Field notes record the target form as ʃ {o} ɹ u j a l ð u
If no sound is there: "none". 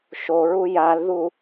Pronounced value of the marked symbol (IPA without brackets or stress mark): o